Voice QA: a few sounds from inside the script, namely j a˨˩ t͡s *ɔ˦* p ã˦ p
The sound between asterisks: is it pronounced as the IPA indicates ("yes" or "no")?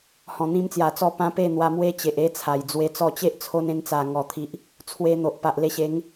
no